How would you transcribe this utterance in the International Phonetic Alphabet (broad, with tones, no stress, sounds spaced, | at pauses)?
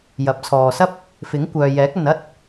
j ɐ˨˥ p̚ t͡sʰ ɔː˨ s ɐ˥ p̚ | f ɪ˨˥ ŋ kʷ œː˨ j ɛː˨˥ k̚ ɐ˨ n ɐ˥ t̚